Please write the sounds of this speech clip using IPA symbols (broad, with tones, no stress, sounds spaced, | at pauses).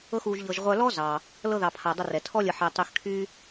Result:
ɤ˦ x uː˧ ʒ ʎ ɤ˧ ʒ ʁʷ œ˧ l ɔ˦ z ɑː˧ | l ɤ˧ ð ɑ˨ pʰ a˨ dˤ ə˧ r ɛ˨ tʰ ɔ˦ lʲ ə˧ ħ ɛ˧ tˤ y˧ x kʰ yː˦